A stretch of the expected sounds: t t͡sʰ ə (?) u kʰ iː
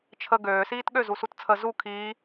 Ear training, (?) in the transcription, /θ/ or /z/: z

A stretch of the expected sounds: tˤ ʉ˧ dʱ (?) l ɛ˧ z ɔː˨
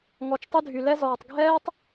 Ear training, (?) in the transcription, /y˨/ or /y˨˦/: y˨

